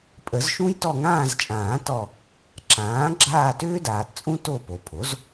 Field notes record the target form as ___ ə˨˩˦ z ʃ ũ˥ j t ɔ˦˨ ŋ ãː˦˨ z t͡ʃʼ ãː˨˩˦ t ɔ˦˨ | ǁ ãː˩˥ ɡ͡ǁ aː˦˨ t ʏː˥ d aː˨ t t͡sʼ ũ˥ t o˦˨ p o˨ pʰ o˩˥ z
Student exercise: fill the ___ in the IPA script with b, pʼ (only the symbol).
pʼ